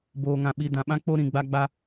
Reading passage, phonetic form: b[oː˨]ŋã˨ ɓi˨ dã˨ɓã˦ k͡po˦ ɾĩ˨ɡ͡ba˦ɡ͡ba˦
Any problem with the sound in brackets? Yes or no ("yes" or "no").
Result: no